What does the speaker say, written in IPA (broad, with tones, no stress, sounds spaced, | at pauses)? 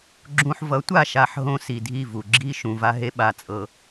ɡ͡ǁ ũ˨ ħ v ʌ˨˦ tʷ a˦˨ ʃ a˦˨ ħ ɦ õ˦ s i˨ dʱ i˦˨ v u˨ ɡ͡ǁ i˦ ʃ ũ˨ v a˦ ɦ e˦ ɓ a˨ t͡sʼ ɤ˨